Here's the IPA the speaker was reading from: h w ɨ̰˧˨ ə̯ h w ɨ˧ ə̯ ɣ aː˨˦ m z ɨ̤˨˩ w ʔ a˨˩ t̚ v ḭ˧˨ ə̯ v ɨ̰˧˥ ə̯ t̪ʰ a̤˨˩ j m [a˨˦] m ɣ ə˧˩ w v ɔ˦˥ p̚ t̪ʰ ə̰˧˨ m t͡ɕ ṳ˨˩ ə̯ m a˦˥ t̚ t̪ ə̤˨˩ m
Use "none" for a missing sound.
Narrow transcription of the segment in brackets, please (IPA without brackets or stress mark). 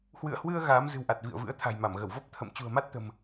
a˧˩